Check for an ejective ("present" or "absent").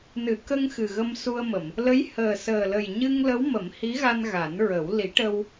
absent